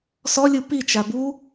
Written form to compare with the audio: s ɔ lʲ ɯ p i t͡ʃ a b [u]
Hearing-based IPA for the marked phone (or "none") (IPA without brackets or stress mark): u